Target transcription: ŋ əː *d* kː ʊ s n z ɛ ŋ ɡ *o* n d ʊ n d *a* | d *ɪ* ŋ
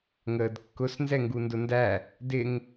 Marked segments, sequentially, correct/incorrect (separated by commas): correct, incorrect, incorrect, correct